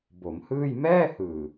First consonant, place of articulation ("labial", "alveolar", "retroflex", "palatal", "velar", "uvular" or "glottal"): labial